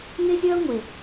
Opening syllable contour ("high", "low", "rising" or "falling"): high